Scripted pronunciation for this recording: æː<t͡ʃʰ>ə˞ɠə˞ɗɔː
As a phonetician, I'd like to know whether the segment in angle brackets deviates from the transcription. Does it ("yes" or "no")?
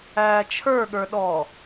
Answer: no